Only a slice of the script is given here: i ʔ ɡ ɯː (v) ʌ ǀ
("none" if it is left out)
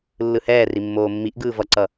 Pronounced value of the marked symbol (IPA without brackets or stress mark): v